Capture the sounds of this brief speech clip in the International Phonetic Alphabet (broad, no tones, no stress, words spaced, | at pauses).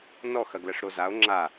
nɔx ɐɡlɐʂɾozao̯ ŋ͡ǁa